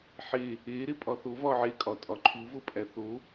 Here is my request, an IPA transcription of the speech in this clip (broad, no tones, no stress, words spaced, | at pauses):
ħe | e ɾepʼɒθo vɒʕekʼɒ tʼɒǃʰu vopʼæθo